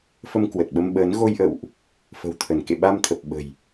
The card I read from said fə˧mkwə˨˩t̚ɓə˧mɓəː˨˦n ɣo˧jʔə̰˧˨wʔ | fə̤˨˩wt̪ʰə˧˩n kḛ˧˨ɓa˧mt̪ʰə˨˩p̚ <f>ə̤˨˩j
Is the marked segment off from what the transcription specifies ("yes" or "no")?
yes